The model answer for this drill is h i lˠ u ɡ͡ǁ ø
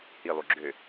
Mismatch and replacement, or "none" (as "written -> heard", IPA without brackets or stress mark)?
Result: none